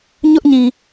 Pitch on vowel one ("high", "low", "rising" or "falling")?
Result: high